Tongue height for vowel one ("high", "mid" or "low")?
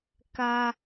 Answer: low